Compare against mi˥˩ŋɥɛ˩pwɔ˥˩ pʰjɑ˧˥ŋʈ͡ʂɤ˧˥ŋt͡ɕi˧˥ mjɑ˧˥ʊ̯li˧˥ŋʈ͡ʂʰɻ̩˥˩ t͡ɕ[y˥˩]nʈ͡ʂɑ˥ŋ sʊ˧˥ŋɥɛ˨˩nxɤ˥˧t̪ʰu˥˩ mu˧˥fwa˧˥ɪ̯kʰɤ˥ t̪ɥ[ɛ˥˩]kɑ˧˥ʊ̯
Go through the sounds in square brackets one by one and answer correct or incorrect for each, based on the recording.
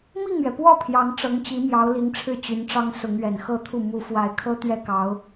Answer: incorrect: y˧˥, correct

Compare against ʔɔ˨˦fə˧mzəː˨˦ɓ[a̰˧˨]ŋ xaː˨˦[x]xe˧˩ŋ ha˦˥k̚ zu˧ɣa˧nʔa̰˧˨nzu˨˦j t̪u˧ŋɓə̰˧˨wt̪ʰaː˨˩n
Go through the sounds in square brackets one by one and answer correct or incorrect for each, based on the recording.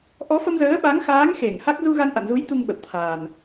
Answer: incorrect: a˨˦, incorrect: ŋ

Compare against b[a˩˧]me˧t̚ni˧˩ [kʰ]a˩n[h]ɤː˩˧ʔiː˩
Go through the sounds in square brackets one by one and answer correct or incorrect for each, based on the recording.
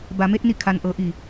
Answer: correct, correct, incorrect: ʔ

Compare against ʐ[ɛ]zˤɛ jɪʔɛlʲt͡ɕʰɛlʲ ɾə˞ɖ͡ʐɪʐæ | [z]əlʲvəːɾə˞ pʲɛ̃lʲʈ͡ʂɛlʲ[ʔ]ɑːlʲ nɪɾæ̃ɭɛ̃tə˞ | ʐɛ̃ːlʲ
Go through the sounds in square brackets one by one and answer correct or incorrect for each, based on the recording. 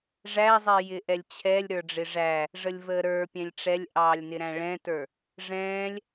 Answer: incorrect: æ, incorrect: ʐ, correct

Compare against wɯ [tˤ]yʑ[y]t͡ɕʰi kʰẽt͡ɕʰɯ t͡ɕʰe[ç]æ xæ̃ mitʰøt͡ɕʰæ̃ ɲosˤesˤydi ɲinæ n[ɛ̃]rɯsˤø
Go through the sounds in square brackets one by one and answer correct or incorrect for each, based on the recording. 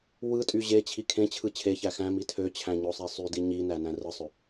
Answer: incorrect: tʼ, incorrect: e, correct, incorrect: æ̃

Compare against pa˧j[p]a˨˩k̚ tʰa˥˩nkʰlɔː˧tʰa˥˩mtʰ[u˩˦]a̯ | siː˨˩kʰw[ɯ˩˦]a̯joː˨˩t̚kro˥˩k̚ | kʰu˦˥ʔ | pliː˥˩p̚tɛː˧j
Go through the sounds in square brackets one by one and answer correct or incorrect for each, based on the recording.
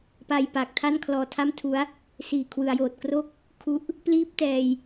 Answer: correct, incorrect: u˦˥, correct

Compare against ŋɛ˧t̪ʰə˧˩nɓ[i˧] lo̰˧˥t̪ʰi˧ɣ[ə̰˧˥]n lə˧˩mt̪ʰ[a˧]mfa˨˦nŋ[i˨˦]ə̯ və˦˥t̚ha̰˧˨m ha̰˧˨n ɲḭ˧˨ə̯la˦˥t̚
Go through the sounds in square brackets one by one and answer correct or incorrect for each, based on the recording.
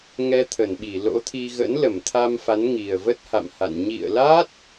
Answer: incorrect: i˧˩, correct, correct, incorrect: i˨˩

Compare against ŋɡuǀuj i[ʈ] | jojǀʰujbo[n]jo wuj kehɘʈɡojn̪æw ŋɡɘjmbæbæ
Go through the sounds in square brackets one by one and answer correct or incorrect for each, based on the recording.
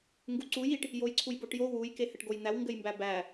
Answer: correct, incorrect: ʈ

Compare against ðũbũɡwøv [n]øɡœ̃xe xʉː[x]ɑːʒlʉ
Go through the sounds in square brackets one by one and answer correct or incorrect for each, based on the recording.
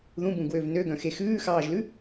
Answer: correct, correct

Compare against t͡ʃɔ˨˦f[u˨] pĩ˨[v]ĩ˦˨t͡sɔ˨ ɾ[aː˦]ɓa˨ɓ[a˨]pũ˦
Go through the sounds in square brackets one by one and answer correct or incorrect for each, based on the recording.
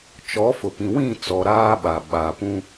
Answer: incorrect: ʊ˨, incorrect: w, correct, correct

